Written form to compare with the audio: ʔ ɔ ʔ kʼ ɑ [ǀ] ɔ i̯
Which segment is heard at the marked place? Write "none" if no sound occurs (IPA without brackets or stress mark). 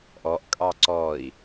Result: ǀ